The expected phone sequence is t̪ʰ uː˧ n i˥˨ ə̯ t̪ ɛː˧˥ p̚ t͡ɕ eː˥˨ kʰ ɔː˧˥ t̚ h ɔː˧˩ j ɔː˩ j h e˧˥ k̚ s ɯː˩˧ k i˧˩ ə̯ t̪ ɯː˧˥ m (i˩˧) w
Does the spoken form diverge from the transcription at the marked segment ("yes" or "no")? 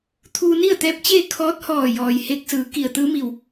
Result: yes